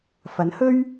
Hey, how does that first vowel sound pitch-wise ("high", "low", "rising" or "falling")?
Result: rising